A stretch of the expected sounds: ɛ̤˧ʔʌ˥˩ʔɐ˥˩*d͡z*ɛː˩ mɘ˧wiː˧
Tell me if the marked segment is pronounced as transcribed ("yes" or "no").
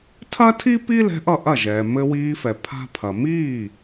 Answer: no